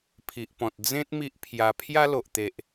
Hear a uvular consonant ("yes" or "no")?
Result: no